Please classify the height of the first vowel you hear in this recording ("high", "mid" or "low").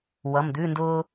mid